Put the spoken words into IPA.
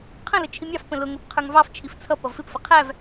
qʰ ə̃ l ə t͡ʃʰ i mʲ ɑ f p ə̃ l ʊ ŋ ə p qʰ ə˞ ŋ v ɑ f t͡ʃʰ i f t͡sʰ ʌ p ʌ v f ɪ p f ə qʰ æ v

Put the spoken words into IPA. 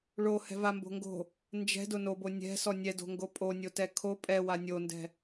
ɭ o h ɛ̤ v a m b o̤ ŋ ɡ o̤ | n d͡ʒ ɛ̤ d ʊ n o b o nʲ ɛ̤ s ɔ nʲ ɛ d o̤ ŋ ɡ o pʼ o nʲ o t ɛ kʰ o pʼ ɛ w a nʲ o n d ɛ̤

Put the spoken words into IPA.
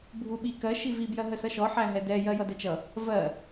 bʱ u ɓ i k ɜ ʃ i v i b j ɜ ɦ ə s ʌ ʃ ɔ ħ æ ɦ ɛ d ɛ j ɜ j ʌ d ə t͡ʃ ʌ | v ɜ

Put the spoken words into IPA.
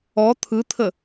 ɔ t̪ʰ ɯ t̪ʰ ə

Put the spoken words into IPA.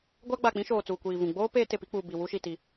ɡʷ a˦ ɡ͡b a˨ k͡p ĩ˦ ʃ oː˨ t͡s uː˨ kʷ iː˨ v ũ˨ ɡ͡b oː˦ p eː˦ t e˨ p i˦ k͡p uː˨ b i˨ w u˦ ʃ i˨ t i˨˦

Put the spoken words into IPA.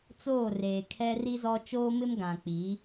t͡s oː˦˨ r eː˨ kʰ ɛ˦ r i˦ z ɔ˦ t͡ʃ oː˦ m ɪ˦ m ɡ ã˨ k͡p i˨˦

